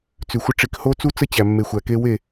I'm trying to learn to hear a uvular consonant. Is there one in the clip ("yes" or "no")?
no